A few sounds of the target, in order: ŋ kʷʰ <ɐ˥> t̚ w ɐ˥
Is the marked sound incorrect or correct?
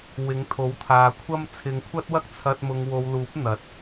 correct